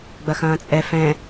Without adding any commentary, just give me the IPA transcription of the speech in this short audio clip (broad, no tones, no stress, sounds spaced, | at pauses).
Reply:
ɡ͡b ɐ x ɐ̃ː t͡sʼ ɛ f ɛ̃